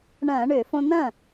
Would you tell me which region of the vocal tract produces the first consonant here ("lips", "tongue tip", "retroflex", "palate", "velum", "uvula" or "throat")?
retroflex